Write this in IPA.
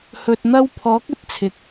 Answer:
h ɵ˨ t̚ n̪ ɐ˧ w pʰ ɔː˨˥ k̚ ɵ˥ t̚ t͡sʰ ɪ˨ k̚

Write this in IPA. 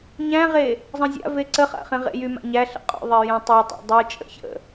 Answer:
ɲ æ̃ ʁ e | zˤ ə̃ zʲ a̰ v e ǀ ə χ a̰ χ ẽ ʁ ḛ j y m a̰ ɲ æ ɬ ə̰ qʼ o̰ ðˤ e j æ̃ tˤ a tˤ a̰ dˤ u t͡ʃʼ ə̰ ç ə̰

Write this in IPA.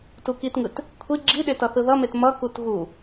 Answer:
t u k i t ŋ ɯ t | kʷʰ i ɡ͡ǁ i ɗ e t ʌ θ ɯ ð ʌ m e t m ʌ k u t ɣ u

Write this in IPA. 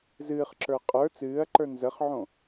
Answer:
z ɨː χ ǁ ə˞ qʼ ə˞ t͡s ɨː ɐ̯ ǃ ə˞ n z ə χ ʕ õ

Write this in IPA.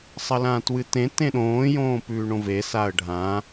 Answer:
sˤ ɐ l ã t w ɨ t ẽ t ẽ ɗ õː j õː p ʉː ɳ õ v e s a ə̯ ɖʱ ã

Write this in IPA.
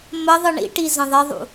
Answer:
m ə ðˤ ɯ ɳ ḭ ʈ i z ə̃ ðˤ ɪ ðˤ ṵ

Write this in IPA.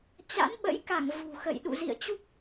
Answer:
t͡ɕ a̰˧˥ n ɓ ə̰˧˥ j k a˧˩ ŋ v ṳ˨˩ x ə̰˧˨ j ɗ ṵ˧˨ z ḭ˧˨ ə̯ t͡ɕ u˦˥ k̚

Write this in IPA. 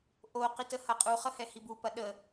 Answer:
ʔ o q i t ə h ɐ qʼ u χ ə h ɛ h i b u p ɐ ɗ ə

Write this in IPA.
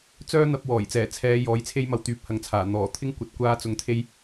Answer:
t͡s œː˥ n̪ ɐ˧ p̚ w ɔː˨˩ j t͡s ɛː˨˩ t͡sʰ ɛː˨˧ j ɔː˨˥ j t͡sʰ e˥ j m ɐ˧ w t̪ yː˨˥ p̚ h ɐ˨ ŋ t͡sʰ aː˨˩ n̪ ɔː˨˩ t̪ʰ ɪ˥ ŋ kʷ ɐ˨˥ t̚ kʷ aː˧ t͡s ʊ˨ ŋ t̪ʰ e˧ j

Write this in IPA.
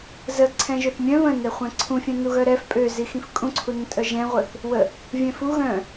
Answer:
z ə ǀʰ ɛ̃ ʒ ø θ mʲ œ̃ β ə̃ n ɛ χʷ ɛ̃ ǀʰ ũ fʲ œ̃ n u ɣ œ ɾ ɛ f pʼ ø z i x ĩ f kʼ ũ ǀʰ u n ə̃ tʼ œ ʒ ɛ̃ ʁʷ œ θ | w ə | vʲ ɛ̃ f u ɣ œ̃

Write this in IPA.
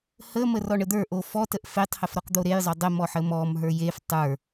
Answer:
h ə m ə r ɔ ɳ ə d̪ ə˞ ʔ o f ɔ t ə ʔ f e tˤ h ə f ɾ ɔ q d̪ o ɾ e j zˤ o dˤ ə m ɔ ħ ə m ɔ m ɦ ə˞ j e f tˤ ə˞

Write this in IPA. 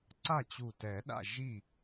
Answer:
ǀ a˥˩ t͡ɕ u˧˩ t ɛ˨˩˦ ɗ a̰˥˩ ʒ i˥˩

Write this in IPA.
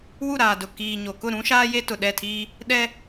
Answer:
w u˦˨ ɾ aː˨ d ʊ˨ k iː˨ ɲ o˨ k ʊ˦˨ ɾ ũ˦ ʃ aː˦ j e˦ t ʊ˨ ɗ ɛ˦˨ tʰ iː˦ | ɗ ɛ˦

